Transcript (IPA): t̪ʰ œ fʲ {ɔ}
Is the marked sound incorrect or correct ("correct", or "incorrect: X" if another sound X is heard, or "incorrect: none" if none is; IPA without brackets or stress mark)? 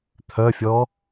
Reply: correct